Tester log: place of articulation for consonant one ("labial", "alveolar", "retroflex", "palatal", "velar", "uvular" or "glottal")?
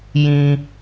palatal